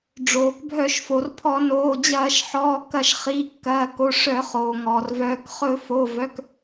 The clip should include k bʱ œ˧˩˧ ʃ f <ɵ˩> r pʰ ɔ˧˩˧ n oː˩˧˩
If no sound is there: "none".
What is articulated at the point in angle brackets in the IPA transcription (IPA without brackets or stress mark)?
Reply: o˩